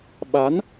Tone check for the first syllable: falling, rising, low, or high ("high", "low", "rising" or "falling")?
rising